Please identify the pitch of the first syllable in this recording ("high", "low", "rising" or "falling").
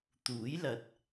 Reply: rising